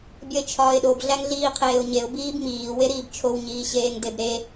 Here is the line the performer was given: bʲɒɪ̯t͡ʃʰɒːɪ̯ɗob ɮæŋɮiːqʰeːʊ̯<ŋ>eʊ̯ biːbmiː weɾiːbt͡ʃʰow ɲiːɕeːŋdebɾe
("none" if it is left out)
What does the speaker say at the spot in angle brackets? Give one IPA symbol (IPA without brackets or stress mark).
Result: ɲ